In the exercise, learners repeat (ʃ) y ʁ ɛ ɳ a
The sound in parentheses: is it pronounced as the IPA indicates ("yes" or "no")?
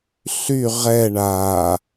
no